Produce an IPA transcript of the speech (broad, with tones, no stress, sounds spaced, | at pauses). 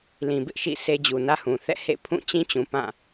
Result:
l ĩ˨ b ɪ˦ ʔ ʃ ḭ˦˨ s e˦ d͡ʑ u˨ n ä˦ h ũ˨ θ ɛ̰˦˨ h ḛ˦˨ pʰ ũ˦˨ t͡ɕ ĩ˦ t͡ɕ ũ˨ p ã˦˨